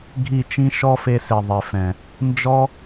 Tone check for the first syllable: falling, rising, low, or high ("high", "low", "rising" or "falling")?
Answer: falling